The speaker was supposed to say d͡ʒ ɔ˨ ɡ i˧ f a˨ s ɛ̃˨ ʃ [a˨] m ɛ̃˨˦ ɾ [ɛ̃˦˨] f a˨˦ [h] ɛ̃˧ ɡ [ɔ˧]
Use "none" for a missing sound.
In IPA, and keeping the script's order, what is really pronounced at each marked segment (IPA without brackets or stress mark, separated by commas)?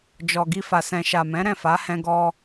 a˨, ɛ̃˦˨, h, ɔ˧